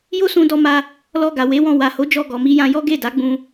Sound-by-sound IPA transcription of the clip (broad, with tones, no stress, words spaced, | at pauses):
jo˦sũ˧dɔ˧ ma˦ | lɔ˧ɡa˨ we˨˦wɔ̃˧ wa˨ho˨˦d͡ʒɔ˧ ɡɔ˨mi˧jã˧jɔ˦ ɡe˦˨da˨˦ɡ͡bũ˧